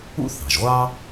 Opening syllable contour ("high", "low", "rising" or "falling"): high